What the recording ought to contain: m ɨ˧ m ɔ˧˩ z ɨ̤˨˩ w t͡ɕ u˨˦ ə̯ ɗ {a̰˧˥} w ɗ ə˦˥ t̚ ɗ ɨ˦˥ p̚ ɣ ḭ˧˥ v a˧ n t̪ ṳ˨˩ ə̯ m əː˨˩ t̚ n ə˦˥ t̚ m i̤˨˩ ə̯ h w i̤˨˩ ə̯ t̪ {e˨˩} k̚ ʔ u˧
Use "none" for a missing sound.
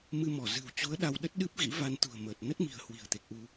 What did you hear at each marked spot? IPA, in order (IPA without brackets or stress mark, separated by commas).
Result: a˧, e˨˩